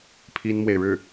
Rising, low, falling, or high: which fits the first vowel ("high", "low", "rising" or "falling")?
high